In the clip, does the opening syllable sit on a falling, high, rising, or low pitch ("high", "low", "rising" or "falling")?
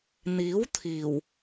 rising